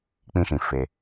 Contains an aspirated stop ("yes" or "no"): no